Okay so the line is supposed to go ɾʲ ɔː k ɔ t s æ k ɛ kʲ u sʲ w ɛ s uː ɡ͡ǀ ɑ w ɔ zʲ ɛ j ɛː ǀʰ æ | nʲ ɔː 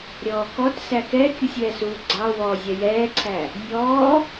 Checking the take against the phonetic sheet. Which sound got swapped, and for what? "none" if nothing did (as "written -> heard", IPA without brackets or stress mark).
none